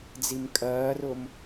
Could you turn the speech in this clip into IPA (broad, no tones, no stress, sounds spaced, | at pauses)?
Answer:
d͡z i m kʼ ɜː r ʊ m